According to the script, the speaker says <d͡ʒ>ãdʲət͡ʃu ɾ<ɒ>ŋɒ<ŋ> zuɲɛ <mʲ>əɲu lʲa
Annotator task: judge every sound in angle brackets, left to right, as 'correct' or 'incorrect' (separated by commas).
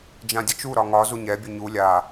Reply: correct, correct, incorrect, incorrect